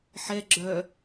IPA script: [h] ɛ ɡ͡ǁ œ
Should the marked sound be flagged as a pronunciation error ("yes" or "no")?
yes